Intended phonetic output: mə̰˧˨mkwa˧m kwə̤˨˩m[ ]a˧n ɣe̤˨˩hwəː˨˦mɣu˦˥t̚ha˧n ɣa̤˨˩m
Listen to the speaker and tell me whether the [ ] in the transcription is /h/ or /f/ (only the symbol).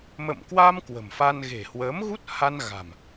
f